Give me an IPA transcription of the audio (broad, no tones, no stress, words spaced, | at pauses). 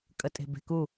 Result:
kʼətʼe̤be̤ku